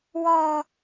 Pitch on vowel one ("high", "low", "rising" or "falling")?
low